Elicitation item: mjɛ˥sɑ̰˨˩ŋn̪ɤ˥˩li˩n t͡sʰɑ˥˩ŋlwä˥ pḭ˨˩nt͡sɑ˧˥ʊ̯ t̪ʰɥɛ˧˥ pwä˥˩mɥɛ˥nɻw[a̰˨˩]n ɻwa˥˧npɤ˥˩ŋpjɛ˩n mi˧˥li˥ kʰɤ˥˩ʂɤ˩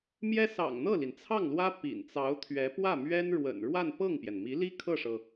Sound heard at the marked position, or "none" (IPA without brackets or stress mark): ə̰˨˩